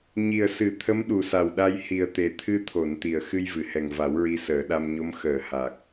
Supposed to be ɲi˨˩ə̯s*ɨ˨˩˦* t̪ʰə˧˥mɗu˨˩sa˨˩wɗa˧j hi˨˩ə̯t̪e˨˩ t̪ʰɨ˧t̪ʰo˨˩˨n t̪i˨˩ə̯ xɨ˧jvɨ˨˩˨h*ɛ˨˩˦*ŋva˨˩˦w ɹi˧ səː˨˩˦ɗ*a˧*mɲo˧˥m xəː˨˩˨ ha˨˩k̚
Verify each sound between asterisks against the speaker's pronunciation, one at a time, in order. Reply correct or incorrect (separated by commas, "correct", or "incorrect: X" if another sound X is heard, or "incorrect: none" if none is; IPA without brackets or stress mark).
correct, incorrect: ɛ˨˩, correct